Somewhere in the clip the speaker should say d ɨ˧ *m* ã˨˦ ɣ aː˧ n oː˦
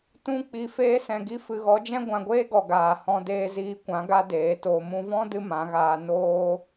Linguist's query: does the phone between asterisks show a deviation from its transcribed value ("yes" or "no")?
no